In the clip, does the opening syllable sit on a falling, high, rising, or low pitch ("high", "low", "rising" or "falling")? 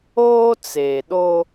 high